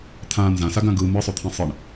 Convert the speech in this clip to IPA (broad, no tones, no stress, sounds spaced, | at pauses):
t̪ʰ ã n z ã s a ɡ ã ɡ ɯ m ɯ sˤ o t̪ʰ ĩ sˤ ɯ ɳ